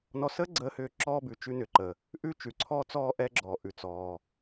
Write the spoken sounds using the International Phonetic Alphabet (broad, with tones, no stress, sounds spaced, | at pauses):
n ɔ˧ s əː˥ ɡ͡ǀ əː˧ h ʏː˧ ǁ ɔː˧ b ʉ˩ t͡ʃ ʉ˧ n ʏ˩ ǃ ə˩ | ʔ ʉ˧ t͡ʃ ʉ˩ ǀʰ ɔː˧ t͡s ɔː˧ ʔ ɛ˧ ɡ͡ǁ ɔː˩ ʔ ʉ˩ t͡s ɔː˩